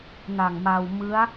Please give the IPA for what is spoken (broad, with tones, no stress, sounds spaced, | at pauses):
n a˨˩ ŋ m a˧ w m ɯ˦˥ a̯